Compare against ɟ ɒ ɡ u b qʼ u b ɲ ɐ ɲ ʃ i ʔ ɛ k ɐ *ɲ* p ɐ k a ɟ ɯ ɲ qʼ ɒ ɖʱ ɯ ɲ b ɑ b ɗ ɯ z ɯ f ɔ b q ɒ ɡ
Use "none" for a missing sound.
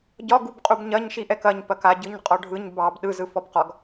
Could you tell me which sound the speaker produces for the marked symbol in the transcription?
ɲ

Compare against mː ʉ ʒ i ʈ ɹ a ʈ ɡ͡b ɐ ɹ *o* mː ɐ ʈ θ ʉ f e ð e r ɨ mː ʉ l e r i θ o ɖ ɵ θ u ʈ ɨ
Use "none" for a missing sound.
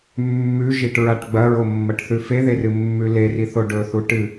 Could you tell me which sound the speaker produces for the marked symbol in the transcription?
o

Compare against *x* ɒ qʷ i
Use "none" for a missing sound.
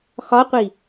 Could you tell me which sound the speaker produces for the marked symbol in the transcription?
x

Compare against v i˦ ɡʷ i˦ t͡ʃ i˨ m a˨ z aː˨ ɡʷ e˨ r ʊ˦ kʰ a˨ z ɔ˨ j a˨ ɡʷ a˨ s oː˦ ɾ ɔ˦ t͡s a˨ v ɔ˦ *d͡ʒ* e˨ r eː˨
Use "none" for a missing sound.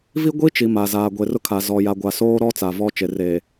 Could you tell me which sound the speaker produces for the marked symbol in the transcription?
t͡ʃ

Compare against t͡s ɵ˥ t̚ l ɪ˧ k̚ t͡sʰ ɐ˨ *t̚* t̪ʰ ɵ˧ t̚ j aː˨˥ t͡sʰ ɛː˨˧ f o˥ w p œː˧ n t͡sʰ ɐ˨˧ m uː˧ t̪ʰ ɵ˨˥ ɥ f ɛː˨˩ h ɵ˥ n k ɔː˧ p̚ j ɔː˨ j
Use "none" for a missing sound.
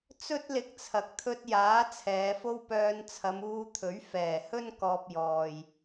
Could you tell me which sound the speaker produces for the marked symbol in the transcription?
k̚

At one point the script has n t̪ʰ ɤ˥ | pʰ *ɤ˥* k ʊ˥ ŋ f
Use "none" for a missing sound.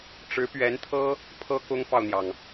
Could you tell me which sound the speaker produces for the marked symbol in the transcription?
ɤ˥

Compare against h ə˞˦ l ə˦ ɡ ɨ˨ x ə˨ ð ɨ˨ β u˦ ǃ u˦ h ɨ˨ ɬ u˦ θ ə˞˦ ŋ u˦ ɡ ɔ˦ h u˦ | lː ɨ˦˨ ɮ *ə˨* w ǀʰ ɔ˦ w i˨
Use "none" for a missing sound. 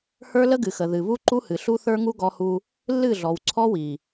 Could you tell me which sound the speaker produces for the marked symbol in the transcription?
ɔ˨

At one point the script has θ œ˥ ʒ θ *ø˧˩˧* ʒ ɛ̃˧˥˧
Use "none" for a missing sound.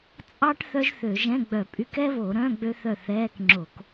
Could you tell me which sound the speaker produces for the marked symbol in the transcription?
ø˧˩˧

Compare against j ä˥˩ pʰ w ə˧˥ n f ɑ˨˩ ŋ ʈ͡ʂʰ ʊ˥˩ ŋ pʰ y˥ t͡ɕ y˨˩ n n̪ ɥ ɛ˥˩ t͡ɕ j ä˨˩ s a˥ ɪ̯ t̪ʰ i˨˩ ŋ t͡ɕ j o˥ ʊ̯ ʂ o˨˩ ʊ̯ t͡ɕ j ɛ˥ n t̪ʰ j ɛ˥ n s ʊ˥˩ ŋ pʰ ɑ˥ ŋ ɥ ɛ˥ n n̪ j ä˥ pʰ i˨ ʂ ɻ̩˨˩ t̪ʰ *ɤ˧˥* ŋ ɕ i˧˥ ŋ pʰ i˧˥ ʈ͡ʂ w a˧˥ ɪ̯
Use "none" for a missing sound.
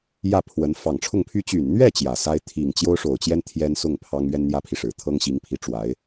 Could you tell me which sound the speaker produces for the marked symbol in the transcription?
ɤ˥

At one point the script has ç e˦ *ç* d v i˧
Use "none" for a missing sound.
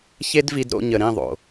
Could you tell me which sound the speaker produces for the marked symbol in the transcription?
none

